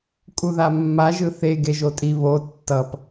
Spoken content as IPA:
kʼ u ð a mː a ʒ ɯ θ e ɡ e ʒ o tʼ i β o tː ʌ p

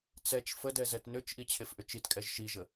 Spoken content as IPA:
t͡s ɛ t͡ʃ f ə d ɛ z ɛ t n ʏ t͡ʃ ʔ i t͡ɕʰ e f ʔ ʏ t͡ʃ i t kʼ ɛ ʒ ʃ i ʒ ə

